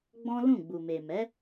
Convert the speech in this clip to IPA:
ɡ͡b ɔ̃˦ l ũ˦˨ ɡ͡b u˨ m e˨ m ɛ˨˦

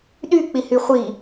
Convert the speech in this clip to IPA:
ɗ y k͡p i h y χʷ i

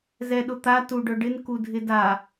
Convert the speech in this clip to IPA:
z ɛ ɗ ʊ t̪ a t u ɖ œ ɖ ɪ n k u dʱ ɪ d a

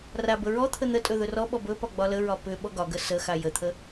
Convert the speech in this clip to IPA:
r a b ə ɹ ɔ t̪ʰ ə n̪ ə tʼ ɵ ð ɵ r ɔ ɓ ɔ b ɵ p ɒ ɡ͡b ɒ l ə ɹ ɒ p ʏ ɓ ɔ ɡ ɒ ɡ ə s ə x a j ə t̪ʰ ə

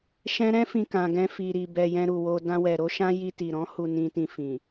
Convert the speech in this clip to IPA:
ʃ ɛ̃˦ ɾ ɛ̃˦ f ĩ˧ k ã˨ ɡ ɛ̃˧ f i˨ ɾ i˨ b ɛ˨ j ɛ̃˧ ɾ u˨ w o˧ d ã˧ w ɛ˨ ɾ o˨˦ ʃ ã˦ j i˧ t i˨ ɾ ɔ̃˨˦ h u˧ n ĩ˧ t ĩ˧ f ĩ˨

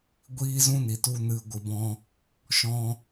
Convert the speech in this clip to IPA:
ɡʷ iː˦ z ũ˦ n i˨ t u˧ n ɨ˨ ɡʷ ɨ˨ b ɔ̃˧ | ʃ ɔ̃˧

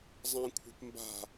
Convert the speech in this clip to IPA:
zˤ ã kʷʰ ɛ̤ p m b a̤

